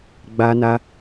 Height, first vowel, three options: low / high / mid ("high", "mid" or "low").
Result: low